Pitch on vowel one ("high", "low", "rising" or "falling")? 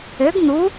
rising